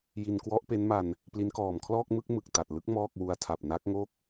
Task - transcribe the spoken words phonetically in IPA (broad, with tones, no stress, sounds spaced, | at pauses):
j i˧ n k w ɔ˦˥ ʔ p e˦˥ n m a˧ n | p l i˦˥ n k ɔː˨˩ m kʰ l ɔː˥˩ k̚ m ɯ˥˩ k̚ m ɯ˨˩ k̚ t a˨˩ t̚ l ɯ˦˥ k̚ m ɔː˥˩ k̚ w u˧ a̯ tʰ a˨˩ p̚ n a˦˥ k̚ ŋ o˥˩ k̚